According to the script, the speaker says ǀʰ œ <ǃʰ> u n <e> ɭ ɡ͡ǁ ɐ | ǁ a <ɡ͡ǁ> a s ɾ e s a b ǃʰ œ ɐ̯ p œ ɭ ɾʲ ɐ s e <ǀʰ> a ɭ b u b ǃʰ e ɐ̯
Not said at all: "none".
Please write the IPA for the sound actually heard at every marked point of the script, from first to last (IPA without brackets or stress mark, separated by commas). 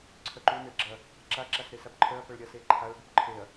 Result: ǃ, e, ǁ, ǃʰ